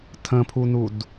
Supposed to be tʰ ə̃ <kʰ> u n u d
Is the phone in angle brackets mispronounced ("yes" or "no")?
yes